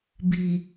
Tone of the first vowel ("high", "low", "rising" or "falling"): low